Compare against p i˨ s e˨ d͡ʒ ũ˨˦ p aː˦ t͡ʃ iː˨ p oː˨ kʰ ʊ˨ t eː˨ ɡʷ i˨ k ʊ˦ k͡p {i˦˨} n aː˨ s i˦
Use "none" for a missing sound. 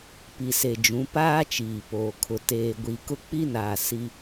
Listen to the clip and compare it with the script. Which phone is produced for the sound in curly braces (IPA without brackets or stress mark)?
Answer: i˦